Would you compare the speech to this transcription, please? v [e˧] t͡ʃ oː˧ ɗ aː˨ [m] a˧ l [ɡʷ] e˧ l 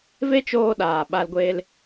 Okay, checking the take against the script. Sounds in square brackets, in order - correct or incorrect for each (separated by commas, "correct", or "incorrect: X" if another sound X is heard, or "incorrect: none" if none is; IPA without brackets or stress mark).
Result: incorrect: e˦, incorrect: ɓ, correct